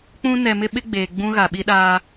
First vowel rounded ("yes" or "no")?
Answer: yes